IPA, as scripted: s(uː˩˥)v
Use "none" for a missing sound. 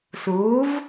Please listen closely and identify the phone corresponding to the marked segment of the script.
uː˩˥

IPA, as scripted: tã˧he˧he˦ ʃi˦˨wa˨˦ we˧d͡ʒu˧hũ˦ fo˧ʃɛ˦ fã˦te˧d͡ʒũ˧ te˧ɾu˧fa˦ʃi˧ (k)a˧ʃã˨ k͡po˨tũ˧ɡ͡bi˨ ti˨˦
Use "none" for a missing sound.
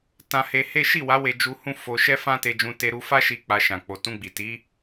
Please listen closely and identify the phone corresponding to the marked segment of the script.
k͡p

